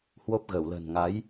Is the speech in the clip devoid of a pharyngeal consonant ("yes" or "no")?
yes